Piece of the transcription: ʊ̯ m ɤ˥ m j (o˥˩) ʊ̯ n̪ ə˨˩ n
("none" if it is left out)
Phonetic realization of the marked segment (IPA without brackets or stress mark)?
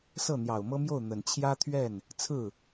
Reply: o˥˩